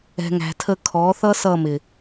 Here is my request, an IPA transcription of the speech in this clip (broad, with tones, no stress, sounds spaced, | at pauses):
ɛ̤˨ ŋ æ̤˨ tʰ ə˧ kʰ ɔ˨˦ θ ʌ˦ s ʌ˦˨ m ɪ˨